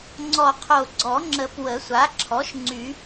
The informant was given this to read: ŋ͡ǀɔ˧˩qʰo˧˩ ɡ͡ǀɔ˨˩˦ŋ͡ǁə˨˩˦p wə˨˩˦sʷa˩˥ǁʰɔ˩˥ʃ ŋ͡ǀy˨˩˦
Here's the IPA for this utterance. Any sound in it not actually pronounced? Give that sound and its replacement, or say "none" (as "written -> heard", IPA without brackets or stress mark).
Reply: none